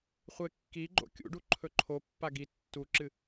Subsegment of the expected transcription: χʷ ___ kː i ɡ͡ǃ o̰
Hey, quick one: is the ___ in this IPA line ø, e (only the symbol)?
e